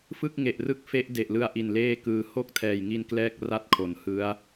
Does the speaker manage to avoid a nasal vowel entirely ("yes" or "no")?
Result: yes